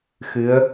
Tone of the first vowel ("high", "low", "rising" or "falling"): rising